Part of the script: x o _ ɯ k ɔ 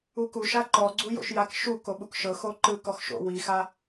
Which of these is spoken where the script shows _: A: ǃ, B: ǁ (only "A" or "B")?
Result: A